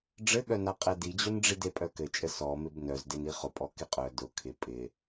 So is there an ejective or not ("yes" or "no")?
yes